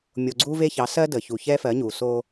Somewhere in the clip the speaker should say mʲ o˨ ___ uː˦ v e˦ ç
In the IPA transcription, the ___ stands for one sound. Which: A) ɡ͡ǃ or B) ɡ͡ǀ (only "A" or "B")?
B